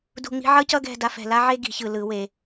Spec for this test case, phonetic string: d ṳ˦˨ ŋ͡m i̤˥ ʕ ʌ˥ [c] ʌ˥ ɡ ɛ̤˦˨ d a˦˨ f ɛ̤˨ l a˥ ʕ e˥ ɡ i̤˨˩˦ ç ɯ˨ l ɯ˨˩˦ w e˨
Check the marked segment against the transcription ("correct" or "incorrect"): correct